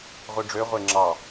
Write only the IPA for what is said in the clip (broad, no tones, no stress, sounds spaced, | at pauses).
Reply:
ʁʷ i ɖ͡ʐ ø ʁʷ e ŋ͡ǁ ɑ